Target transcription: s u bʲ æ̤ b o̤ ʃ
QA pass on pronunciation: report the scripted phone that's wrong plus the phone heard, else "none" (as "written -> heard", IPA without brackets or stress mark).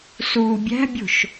b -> bʲ